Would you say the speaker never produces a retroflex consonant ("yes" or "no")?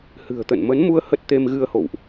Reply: yes